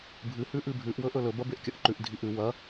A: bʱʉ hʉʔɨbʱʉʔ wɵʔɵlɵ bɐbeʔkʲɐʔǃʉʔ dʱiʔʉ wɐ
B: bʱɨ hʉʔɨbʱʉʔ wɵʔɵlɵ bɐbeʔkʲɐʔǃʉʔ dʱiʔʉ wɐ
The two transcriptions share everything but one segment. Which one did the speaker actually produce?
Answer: B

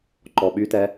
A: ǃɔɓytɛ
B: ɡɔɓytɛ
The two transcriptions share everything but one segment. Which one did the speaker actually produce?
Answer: A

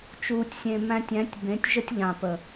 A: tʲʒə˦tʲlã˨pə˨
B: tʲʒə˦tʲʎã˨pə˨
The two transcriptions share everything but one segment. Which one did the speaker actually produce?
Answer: B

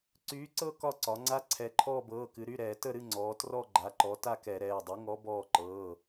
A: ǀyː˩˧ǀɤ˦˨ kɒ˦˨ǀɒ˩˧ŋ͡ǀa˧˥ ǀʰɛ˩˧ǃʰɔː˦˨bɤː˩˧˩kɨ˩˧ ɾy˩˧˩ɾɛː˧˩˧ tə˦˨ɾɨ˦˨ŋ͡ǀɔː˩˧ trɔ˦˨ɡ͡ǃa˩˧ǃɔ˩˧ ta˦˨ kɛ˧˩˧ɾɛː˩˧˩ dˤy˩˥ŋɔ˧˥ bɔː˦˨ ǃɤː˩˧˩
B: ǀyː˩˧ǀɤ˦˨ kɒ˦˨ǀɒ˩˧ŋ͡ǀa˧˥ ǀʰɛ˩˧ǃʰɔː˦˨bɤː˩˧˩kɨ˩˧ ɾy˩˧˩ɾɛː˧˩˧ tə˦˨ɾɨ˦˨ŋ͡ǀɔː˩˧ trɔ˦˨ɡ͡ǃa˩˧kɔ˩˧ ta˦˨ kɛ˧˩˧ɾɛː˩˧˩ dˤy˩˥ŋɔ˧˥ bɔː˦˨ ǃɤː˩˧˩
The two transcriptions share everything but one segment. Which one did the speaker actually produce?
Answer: A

